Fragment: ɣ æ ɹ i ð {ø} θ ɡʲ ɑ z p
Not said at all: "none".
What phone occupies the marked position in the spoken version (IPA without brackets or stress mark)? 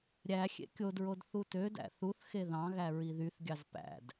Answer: y